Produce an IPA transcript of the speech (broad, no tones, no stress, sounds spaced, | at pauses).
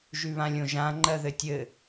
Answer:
ʒ ʉ β ã lʲ õ ʒ ã ŋ͡ǃ ɜ ð ɘ tʲ ɘ